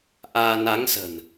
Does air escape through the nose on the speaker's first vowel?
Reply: no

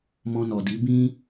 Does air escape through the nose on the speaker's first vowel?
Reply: yes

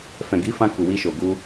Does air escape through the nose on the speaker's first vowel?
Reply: yes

